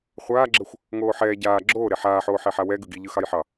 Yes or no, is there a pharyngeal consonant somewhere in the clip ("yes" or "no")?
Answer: yes